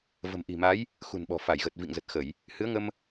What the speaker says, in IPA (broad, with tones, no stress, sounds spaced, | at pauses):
v ə̤˨˩ m ʔ i̤˨˩ m a˨˦ j | x ṳ˨˩ n ɓ ɔ̤˨˩ f a˧˩ j ɣ ə˨˩ t̚ v ḭ˧˨ ŋ z ə˨˩ t̚ x ə˧˩˨ j | h ɨ˨˦ ə̯ ŋ ə˧ m